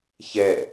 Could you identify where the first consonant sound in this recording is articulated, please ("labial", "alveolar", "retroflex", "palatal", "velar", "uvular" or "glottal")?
palatal